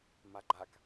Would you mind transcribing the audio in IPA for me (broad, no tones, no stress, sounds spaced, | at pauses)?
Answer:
m a ɡ͡ǃ a k